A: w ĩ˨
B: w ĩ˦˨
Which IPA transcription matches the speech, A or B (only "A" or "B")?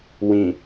A